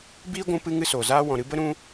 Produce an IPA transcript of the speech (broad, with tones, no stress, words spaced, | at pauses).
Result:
biː˦ ɡʷũ˧ pɨ˦ŋɨ˦soː˨zaː˦ wɔ̃˨ɾɨ˧bə˦ ɾũ˦